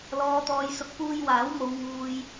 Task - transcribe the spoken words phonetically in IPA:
l ɔː˨ t̪ ɔː˨ j s ʊ˨ k̚ p uː˧ j w aː˨˥ w m o˨˧ w ŋ uː˨ j

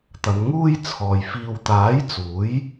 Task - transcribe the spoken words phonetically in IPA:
t̪ ɐ˨˧ n ŋ uː˥ j t͡sʰ ɔː˨ j f iː˧ w t̪ aː˨˥ j t͡s uː˨˥ j

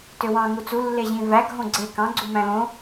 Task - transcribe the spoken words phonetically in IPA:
t ø w ɑ̃ ŋ u t͡s u lː e ʑ ĩ v æ ɡʱ õ ɡ͡ǀ e k ɑ̃ ɡ͡ǀ u m æ̃ l õ

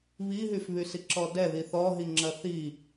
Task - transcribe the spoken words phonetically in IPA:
β i ɦ y f β y s i ǁ ɔ d ɛ ð i θ ɔ ɦ i ŋ͡ǁ ɐ θ i

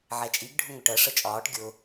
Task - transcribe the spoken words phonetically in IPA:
ʕ ɛ t͡ʃʼ i ɡ ɖʱ ʊ ŋ ʊ ʈ ɜ ʂ ə t͡ʃʼ ɒː ʈ ɡʲ ʊ

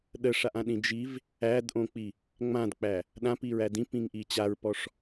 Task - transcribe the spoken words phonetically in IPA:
ɗ ə ʂ a ʔ ã ɗ ĩ d͡ʒ i v | æ d ʔ õ k͡p i | ŋ͡m ã d k͡p æ | ɗ ã p i ɹ æ d ĩ p ĩ ŋ ʔ i t͡ɕ a ɹ p ɔ ʂ

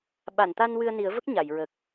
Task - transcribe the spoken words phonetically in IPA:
ɓ a˨˩˨ n t̪ a˧ n w ɨ˧ ə̯ n i˨˩˦ ə̯ v ə˦˥ k̚ ɲ a˨˩˨ j ɹ ə˨˩ k̚

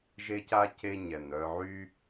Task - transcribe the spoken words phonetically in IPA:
ʒ e˦ c a˥ c e˦ ɲ ɛ˩ n œ˨ ʕ y˦

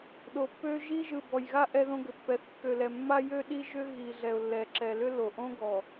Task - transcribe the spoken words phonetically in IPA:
ɗ o˨ pː ø˦ ʒ i˦ ʒ ɯ˨ b ɔ˨ j ɣ a˦ ʔ ɛ˦ ð õ˦ ɡ ʏ˨ pː ɛ˨ θ kː ø˨ l ɛ˨ mː a˦ j ø˦ ɗ i˦ ʒ ʏ˦ ɣ i˨ ɮ ɛ˨ ʊ̯ lː ɛ˨ ǁ ɛ˨ l ʏ˦ l o˨ ʔ õ˦ ɡ ɔ˨

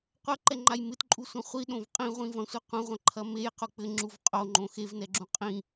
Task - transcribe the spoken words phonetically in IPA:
qʷ ɐ ǃ ɛ ŋ͡ǃ a j m ɨ t ǃʼ u sʷ ɐ̃ χʷ i ɗ õ v qʼ ĩ ʁʷ ĩ v ɐ̃ sʷ ɨ qʷ ɐ̃ ʁʷ ɐ̃ ǃʰ ɐ m e j q u k͡p ɘ ŋ͡ǁ u v qʼ o ŋ͡ǃ õ x e v n ɛ ɡ͡ǁ ũ qʼ ĩ

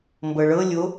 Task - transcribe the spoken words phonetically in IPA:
m b ɤ ɭ ɤ lʲ o

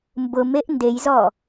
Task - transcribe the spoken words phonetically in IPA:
m b ʊ m e ʔ n d e j z ɔ

